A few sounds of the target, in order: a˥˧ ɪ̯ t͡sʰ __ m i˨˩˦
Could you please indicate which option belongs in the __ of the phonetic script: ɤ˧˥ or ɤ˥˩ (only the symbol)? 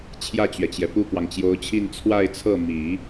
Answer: ɤ˥˩